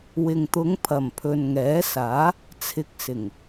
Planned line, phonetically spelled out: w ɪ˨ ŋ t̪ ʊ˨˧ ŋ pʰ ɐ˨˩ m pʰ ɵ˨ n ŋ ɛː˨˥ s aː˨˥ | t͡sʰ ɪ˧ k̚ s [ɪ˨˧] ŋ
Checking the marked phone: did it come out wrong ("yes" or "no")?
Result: yes